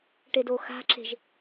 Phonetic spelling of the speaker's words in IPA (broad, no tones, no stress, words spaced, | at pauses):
ʈedoxa̤ ǁe̤ʒ